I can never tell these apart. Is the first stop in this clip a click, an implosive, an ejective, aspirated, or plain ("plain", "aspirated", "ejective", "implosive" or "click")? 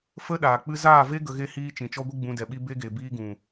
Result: implosive